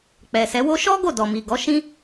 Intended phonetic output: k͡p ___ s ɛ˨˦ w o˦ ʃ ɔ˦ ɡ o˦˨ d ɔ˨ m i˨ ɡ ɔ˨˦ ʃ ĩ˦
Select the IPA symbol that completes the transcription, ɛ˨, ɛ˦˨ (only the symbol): ɛ˨